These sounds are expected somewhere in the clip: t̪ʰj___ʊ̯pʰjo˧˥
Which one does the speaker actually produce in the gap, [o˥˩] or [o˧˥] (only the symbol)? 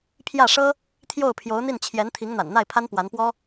o˥˩